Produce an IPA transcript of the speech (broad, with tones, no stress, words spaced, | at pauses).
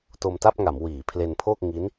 to˧mta˥˩p̚ŋa˩˦m wiː˩˦pʰle˧npʰo˥˩k̚ ŋi˦˥n